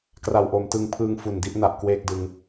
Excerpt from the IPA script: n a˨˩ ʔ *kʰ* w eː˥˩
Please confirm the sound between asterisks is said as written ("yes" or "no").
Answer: no